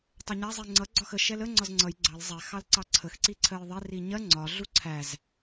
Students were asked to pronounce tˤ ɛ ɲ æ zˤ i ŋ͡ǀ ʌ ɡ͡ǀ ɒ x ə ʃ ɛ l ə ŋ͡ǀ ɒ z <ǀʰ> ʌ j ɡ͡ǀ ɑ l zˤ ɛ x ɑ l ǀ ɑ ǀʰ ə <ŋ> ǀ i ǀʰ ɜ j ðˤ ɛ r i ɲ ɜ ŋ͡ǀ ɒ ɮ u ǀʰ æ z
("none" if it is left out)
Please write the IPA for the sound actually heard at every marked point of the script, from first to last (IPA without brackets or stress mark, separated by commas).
ŋ͡ǀ, x